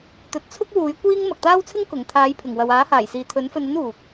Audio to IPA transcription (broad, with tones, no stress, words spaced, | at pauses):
t̪ɵ˨t̚t͡sʰʊ˥k̚ wuː˨˥jkʷiː˥ŋ mɐ˨k̚t̪aː˥wt͡sʰɪ˥ŋ kʊ˨˩ŋ t̪ʰaː˨˥jpʰɪ˨˩ŋwɐ˨w aː˨˥haː˨˩j siː˨t̪ʰɵ˨˥nfɵ˧nɐ˥n uː˨k̚